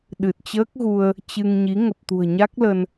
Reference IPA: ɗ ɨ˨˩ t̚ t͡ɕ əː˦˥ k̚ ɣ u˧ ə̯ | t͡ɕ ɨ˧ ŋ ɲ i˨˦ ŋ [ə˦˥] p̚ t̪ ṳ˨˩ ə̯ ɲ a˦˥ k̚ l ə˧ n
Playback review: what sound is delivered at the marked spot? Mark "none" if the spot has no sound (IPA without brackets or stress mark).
ə˨˩